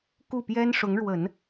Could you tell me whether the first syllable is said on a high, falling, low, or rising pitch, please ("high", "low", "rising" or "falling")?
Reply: falling